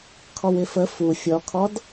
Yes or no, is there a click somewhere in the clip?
no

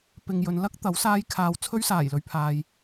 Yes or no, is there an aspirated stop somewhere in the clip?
yes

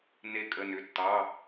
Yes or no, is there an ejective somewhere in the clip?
yes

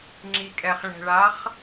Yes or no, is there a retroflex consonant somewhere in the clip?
yes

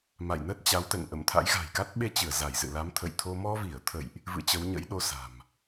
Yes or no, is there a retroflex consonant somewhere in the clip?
no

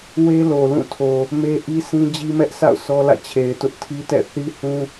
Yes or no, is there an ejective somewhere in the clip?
no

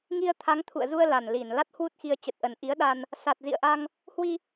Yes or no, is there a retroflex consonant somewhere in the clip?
no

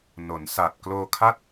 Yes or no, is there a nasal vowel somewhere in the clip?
no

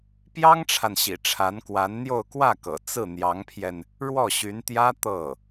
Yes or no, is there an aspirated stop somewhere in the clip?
yes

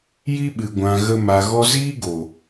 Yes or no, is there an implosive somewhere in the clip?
yes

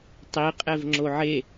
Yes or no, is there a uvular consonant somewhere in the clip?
yes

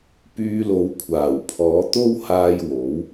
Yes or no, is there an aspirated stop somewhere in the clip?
yes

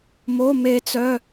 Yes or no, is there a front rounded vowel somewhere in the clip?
yes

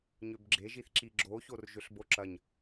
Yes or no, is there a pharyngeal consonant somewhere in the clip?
no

